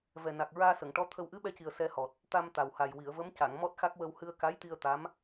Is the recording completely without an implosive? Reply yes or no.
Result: no